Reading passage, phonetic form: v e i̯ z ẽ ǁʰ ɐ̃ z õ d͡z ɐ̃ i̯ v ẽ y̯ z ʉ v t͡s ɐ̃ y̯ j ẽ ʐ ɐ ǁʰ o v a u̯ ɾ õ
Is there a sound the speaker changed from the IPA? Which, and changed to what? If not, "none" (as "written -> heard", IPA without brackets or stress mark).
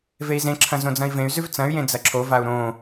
ʐ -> d͡z